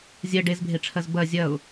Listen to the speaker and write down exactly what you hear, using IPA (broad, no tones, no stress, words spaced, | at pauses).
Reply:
zʲɜ ɖezbʱeʈ͡ʂʰɜz bɜ zʲɐʊ̯